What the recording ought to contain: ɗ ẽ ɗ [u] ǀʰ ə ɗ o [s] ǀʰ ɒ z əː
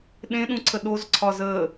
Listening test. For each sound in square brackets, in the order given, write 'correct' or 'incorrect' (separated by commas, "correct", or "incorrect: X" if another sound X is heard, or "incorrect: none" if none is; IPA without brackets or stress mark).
incorrect: ũ, incorrect: z